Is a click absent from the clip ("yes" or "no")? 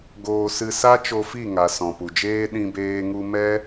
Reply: yes